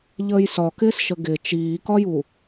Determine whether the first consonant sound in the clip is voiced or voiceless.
voiced